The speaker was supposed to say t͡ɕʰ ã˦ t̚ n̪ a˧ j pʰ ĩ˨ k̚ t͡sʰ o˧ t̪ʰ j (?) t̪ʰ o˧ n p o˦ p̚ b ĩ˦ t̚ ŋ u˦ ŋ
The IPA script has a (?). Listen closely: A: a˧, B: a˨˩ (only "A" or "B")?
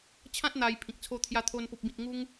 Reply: A